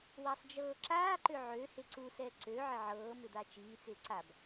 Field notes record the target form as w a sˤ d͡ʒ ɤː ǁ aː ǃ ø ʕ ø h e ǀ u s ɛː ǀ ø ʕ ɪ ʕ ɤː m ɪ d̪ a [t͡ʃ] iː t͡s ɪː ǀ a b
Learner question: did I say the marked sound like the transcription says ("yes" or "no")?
yes